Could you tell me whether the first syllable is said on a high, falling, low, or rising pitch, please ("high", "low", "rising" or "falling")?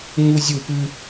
high